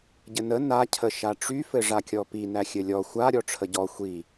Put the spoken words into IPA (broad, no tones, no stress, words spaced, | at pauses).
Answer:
ɟɘnə nacʰə ʃaʈ͡ʂyfɘ ʐakʲɔpi næxʲɘlʲɔ xʷa ɾʲɔʈ͡ʂʰəɟɔ xʷi